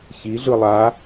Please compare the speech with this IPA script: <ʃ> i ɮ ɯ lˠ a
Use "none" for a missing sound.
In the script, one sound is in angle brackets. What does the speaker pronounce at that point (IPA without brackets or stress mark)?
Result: ç